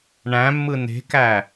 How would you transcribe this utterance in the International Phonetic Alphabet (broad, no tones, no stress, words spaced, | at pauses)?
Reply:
ɳæ̃mːɯ ne̤kæ